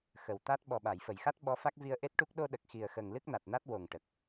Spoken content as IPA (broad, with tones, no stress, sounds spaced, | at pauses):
x ə˨˩ w t̪ a˦˥ t̚ ɓ ɔ˨˩ ɓ a˨˩˨ j f ə˨˩˨ j x a˦˥ t̚ ɓ ɔ˧˥ f a˦˥ k̚ v i˧ ə̯ ʔ e˦˥ t̚ ʈ u˦˥ k̚ ɗ o˧ ɗ ə˨˩ k̚ x i˨˩ ə̯ x ə˨˩ ŋ l ɨ˦˥ k̚ n a˨˩ t̚ n a˦˥ t̚ w o˨˩ ŋ ʈ ə˨˩ k̚